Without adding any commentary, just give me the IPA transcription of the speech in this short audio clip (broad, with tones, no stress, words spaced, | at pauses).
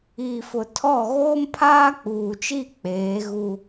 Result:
iː˨fʊ˨ tʰɔ˦˨ ɣoː˦mpʰaː˦k͡puː˨t͡ʃi˦˨ k͡peː˨˦ɣu˦